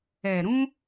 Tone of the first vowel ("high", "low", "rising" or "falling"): low